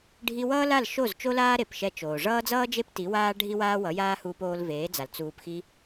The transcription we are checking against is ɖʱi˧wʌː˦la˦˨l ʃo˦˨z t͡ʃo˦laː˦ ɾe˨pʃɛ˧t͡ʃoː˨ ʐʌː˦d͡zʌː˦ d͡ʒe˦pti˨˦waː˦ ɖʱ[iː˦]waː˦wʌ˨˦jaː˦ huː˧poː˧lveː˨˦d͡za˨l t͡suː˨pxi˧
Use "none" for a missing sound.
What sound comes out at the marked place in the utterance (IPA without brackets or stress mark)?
i˦